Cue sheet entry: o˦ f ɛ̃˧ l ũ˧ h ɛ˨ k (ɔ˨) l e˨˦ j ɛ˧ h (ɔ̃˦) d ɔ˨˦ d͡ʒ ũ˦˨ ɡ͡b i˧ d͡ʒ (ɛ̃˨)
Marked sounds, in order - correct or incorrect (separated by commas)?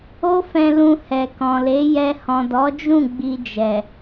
incorrect, incorrect, incorrect